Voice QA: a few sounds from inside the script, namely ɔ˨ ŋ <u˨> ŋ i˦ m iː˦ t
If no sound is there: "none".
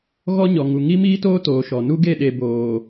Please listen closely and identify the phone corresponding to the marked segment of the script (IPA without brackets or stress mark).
u˨